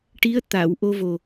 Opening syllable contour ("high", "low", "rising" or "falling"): rising